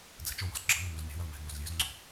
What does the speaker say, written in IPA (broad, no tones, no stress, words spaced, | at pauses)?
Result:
d͡zɛ̤t͡ʃowɔ̤z ɡ͡ǁʌŋɔ møznʲɔ̤wʌl mɛ̤ŋozlʲøzŋ͡ǀo̤